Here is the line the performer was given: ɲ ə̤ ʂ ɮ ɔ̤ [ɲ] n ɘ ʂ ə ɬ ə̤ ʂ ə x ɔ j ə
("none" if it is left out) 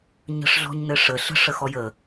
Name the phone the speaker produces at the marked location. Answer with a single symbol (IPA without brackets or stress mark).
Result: ɲ